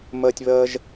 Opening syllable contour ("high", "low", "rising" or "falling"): high